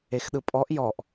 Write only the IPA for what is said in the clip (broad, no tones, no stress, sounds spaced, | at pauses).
e x ɗ ɯ pʼ ɔ ʔ j ɔ ʔ